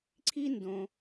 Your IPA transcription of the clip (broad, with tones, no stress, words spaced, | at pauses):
ǀʰi˥ndõ˧